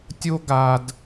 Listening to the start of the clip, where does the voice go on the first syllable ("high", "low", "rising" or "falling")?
high